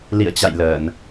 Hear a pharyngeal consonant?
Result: no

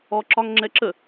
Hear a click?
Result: yes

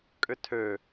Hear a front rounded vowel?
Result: yes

